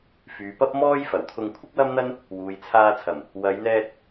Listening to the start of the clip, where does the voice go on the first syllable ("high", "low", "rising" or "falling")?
low